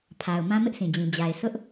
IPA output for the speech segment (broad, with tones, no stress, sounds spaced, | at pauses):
pʰ a˨ ʊ̯ m ã˦ m ɪ˦ ʔ s ĩ˨ d͡ʑ ĩ˨ d͡ʑ a˨ ɪ̯ s ʊ˦ ʔ